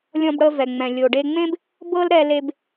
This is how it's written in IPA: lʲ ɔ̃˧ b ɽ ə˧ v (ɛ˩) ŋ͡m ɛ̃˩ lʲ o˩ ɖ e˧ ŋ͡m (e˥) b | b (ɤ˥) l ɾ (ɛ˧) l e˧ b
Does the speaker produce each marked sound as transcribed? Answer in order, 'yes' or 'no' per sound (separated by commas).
yes, no, yes, yes